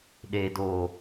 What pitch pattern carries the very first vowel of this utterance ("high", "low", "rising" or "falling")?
low